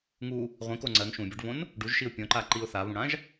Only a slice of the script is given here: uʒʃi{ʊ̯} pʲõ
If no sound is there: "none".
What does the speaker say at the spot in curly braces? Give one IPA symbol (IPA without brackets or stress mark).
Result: ʊ̯